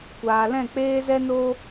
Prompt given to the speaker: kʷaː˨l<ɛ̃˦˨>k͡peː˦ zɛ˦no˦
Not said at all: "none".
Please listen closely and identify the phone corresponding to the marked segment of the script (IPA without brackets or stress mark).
ɛ̃˦˨